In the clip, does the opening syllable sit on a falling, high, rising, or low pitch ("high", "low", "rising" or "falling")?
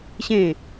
falling